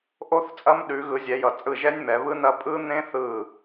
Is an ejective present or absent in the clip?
present